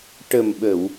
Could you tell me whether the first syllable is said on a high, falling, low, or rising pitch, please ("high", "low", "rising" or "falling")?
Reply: low